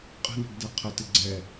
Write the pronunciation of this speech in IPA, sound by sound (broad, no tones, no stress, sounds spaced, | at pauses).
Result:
qʼ ə̤ n ə̤ ɡ d ɛ qʰ ə t ɪ ɡ͡ǀ ɛ